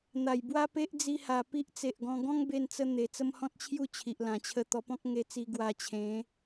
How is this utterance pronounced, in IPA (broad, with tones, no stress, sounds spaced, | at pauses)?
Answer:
n̪ a˨˩ j b w a˦ p e˦ ʔ d͡z i˧ h a˨˩ p i˦ ʔ t͡s e˨ ʔ ɡ ɔ̃˧ ɡ ɔ̃˦ ŋ b e˧ n t͡s ə˧ n̪ e˨˩ t͡s ə˦ m h ɔ̃˦ t̚ t͡ɕʰ j u˥˧ t͡ɕʰ i˨ ʔ l ã˨˩ t͡ɕʰ ə˧ t̪ ɔ˧ p ɔ̃˦ k̚ ŋ e˧ t͡s i˧ ɡ w a˧ t͡ɕʰ ẽ˨˦